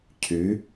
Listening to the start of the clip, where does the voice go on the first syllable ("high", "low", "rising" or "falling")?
rising